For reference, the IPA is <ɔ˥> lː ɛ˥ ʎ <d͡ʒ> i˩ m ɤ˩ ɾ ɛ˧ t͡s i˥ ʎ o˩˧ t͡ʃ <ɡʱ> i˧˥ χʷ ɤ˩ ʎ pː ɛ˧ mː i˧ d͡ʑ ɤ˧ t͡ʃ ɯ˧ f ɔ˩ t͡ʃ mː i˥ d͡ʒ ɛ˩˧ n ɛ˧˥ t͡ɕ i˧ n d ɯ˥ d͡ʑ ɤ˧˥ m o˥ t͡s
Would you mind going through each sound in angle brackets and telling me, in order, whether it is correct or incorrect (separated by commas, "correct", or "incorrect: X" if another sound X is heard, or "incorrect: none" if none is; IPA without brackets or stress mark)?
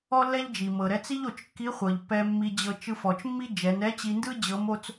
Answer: correct, correct, incorrect: kː